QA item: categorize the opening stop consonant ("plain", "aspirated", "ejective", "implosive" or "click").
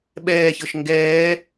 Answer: implosive